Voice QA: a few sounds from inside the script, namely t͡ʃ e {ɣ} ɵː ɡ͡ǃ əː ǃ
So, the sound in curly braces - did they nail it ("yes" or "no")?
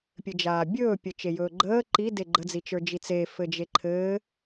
no